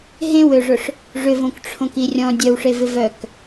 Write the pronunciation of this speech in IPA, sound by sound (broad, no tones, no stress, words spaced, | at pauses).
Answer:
ɦẽwøʐʊʂ | ʐʏvõkʈ͡ʂʰõki rʲɔ̃ dʲœwʂevɪ vœk